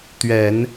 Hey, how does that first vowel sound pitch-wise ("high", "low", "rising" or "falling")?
low